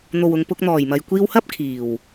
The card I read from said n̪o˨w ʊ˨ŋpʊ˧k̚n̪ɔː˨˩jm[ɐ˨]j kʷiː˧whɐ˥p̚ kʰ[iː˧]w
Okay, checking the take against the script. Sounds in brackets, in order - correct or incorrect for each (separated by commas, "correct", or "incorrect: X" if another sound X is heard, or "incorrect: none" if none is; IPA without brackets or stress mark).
correct, incorrect: iː˨˩